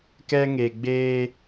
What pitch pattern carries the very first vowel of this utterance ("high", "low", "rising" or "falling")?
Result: high